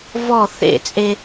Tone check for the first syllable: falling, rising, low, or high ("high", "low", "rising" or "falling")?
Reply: falling